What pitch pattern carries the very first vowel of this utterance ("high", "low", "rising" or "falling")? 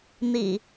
low